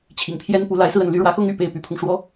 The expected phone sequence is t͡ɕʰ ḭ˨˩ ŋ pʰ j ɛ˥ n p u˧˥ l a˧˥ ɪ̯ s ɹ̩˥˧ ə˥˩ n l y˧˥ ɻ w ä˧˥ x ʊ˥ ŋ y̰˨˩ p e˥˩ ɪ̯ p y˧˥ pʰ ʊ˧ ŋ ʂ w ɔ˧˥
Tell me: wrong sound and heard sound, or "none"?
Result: none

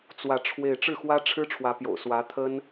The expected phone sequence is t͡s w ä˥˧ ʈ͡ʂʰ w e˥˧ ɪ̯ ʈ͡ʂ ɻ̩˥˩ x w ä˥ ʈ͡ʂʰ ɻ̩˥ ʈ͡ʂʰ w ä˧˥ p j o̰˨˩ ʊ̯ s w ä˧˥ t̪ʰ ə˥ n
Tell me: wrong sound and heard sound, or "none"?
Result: none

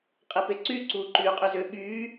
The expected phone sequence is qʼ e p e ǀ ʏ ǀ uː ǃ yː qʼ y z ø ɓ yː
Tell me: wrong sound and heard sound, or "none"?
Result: ʏ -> y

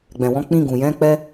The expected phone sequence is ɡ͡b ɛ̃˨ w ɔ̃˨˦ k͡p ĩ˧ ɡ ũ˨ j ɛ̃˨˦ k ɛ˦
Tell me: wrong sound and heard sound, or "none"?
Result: k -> k͡p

